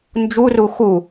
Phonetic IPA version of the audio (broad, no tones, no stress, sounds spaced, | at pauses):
n d͡ʒ u r u x u